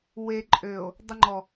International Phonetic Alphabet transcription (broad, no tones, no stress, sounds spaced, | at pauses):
w e ǃʼ ø o̯ | dˤ ʏ ŋ͡ǃ ɔ